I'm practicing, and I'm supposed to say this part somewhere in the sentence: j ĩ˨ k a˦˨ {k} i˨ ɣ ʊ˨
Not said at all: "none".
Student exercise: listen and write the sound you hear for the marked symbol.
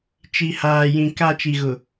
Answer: t͡ʃ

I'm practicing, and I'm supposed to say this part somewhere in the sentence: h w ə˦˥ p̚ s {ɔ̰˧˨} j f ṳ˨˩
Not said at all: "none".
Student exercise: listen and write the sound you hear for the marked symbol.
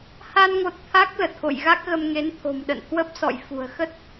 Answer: ɔ̰˧˨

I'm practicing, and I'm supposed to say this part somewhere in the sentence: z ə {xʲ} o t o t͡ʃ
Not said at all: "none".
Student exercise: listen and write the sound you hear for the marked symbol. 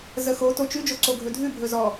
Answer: x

